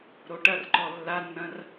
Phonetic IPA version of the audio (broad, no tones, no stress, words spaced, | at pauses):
ɾoʈɐrǃɔ lːanːɐ̃r